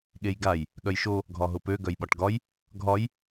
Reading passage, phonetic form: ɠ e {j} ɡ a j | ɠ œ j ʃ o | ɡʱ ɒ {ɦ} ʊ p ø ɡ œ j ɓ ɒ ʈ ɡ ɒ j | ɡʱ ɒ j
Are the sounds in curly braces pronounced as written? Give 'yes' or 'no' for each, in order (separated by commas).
yes, yes